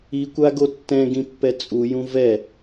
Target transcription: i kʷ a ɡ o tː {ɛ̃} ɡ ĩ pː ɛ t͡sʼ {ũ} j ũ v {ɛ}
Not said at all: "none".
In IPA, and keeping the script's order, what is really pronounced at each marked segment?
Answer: ɛ̃, u, ɛ

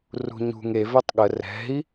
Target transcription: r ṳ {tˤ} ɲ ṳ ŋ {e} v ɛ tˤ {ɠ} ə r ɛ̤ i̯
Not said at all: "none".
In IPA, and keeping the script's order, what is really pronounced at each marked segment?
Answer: none, e, ɠ

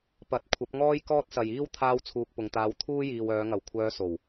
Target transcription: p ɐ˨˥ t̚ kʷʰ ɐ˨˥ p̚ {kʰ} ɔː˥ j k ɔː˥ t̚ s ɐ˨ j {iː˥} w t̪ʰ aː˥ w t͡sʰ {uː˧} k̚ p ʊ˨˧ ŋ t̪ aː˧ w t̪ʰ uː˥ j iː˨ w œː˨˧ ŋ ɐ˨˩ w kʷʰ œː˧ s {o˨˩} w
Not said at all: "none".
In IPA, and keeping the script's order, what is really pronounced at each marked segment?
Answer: ŋ, iː˥, uː˧, o˨˩

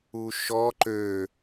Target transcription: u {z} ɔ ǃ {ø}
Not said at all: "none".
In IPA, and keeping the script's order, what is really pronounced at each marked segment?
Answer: ʃ, ø

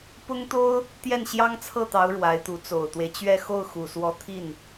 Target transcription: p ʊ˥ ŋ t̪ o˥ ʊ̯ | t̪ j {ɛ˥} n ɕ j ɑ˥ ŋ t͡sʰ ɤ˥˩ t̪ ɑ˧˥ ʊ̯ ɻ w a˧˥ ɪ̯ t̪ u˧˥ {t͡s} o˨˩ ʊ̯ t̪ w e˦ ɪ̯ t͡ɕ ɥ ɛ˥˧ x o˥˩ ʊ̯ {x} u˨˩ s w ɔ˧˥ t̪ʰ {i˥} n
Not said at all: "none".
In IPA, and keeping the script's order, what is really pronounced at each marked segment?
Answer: ɛ˥˩, t͡s, x, i˥˩

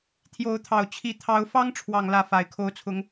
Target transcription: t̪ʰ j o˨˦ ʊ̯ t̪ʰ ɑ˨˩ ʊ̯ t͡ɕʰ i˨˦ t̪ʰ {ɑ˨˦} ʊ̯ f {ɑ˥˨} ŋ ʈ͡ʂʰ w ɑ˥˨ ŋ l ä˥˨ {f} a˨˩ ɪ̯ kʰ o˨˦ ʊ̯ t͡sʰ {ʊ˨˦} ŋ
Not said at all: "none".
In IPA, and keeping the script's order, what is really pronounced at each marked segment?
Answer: ɑ˨˦, ɑ˦, f, ʊ˨˦

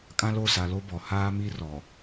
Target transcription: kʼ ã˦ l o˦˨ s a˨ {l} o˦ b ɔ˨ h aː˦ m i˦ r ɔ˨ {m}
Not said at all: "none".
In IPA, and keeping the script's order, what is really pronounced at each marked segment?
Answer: l, none

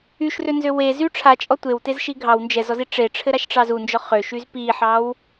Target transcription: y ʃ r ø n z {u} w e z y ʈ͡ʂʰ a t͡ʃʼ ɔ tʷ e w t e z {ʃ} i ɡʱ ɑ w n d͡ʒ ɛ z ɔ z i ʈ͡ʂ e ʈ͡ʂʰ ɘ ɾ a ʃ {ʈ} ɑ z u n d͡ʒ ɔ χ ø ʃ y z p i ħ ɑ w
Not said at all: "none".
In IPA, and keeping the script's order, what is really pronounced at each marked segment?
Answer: ø, ʃ, ʈ͡ʂ

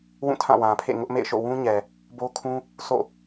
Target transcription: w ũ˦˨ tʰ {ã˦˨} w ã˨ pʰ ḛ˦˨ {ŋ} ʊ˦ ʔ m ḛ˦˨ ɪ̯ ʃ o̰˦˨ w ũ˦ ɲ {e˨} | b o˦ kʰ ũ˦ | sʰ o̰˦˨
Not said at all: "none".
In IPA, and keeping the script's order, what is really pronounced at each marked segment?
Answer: ã˦˨, ŋ, ɛ˨

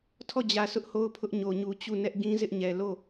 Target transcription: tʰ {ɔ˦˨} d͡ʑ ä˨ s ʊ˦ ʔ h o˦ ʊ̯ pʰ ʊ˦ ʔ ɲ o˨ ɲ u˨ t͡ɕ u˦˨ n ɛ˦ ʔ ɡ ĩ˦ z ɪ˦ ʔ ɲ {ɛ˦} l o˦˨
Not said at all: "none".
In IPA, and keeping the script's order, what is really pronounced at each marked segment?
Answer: ɔ˦˨, ɛ˨

